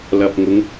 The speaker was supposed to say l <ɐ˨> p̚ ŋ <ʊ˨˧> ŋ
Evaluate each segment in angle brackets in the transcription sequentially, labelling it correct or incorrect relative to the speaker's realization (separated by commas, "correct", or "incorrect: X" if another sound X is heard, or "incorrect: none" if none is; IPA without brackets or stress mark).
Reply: correct, correct